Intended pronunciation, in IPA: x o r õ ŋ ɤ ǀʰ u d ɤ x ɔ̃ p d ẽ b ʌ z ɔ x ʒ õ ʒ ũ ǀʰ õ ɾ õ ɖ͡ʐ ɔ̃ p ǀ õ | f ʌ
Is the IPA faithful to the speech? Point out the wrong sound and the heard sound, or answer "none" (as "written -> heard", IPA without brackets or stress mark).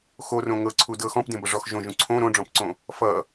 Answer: z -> ʐ